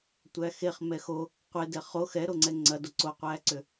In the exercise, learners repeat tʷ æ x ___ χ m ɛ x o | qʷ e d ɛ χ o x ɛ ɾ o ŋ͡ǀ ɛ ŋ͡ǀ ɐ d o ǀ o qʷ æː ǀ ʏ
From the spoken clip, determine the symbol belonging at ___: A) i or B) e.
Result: B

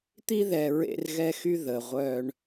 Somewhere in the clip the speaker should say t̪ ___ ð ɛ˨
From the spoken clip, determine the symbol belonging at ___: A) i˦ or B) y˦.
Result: A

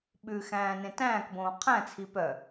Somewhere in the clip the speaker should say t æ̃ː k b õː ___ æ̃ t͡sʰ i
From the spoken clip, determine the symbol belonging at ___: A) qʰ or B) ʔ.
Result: A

